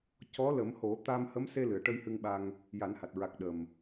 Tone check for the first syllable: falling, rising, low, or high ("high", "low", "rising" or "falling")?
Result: rising